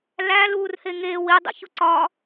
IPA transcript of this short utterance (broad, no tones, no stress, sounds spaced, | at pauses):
l æ l uː r h e ŋ eː w i dˤ ḭ ç u ǀ ɒː